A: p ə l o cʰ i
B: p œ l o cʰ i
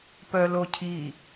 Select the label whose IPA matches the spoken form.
B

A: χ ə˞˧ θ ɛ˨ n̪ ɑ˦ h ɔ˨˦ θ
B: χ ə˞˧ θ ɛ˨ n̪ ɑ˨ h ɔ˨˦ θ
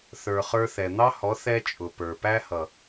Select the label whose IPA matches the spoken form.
A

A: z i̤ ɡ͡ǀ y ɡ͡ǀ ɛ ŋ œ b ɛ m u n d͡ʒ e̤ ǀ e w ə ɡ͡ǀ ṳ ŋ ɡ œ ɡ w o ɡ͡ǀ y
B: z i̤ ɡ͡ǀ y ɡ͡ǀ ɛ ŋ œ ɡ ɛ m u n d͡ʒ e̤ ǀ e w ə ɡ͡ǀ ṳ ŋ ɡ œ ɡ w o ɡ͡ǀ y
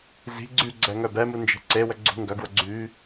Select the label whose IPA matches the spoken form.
A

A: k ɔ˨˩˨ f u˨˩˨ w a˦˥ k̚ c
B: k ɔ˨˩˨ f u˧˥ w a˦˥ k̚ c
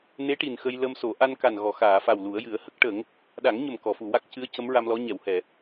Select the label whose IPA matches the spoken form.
A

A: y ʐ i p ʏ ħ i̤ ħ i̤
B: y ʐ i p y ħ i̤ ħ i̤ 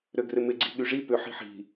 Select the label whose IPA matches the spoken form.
A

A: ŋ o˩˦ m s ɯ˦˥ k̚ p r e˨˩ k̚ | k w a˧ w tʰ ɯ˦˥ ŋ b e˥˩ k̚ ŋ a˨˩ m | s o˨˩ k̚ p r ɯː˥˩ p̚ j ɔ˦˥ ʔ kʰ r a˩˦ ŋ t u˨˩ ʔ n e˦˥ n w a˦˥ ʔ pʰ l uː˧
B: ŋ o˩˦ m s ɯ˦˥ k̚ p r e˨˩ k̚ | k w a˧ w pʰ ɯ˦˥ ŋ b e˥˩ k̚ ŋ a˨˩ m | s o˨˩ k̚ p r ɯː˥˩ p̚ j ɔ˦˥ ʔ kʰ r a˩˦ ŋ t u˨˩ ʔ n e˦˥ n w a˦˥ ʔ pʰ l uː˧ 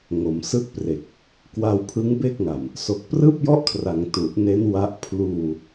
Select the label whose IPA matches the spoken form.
B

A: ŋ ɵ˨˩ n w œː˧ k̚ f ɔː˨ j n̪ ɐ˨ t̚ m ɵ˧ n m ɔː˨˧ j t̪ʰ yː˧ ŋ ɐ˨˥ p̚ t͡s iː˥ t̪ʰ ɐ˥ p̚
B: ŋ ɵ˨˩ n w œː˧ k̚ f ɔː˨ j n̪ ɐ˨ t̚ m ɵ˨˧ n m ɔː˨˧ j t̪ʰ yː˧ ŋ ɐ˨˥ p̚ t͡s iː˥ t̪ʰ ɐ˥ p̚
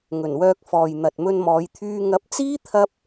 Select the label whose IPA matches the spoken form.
A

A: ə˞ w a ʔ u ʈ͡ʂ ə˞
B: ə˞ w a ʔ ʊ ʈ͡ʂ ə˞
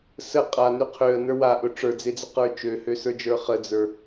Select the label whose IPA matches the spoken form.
B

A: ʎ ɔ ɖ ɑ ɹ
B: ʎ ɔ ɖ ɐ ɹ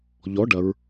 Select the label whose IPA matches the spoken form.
B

